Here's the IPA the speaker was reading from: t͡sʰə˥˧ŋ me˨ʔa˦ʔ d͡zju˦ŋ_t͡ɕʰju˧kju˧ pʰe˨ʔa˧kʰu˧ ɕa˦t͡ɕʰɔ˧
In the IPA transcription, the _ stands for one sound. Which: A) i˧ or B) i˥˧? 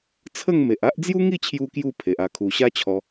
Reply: B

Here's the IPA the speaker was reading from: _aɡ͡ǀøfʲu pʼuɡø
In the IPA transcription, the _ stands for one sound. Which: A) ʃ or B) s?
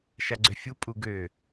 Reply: A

